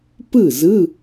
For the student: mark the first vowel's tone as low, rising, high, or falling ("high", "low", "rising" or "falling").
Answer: falling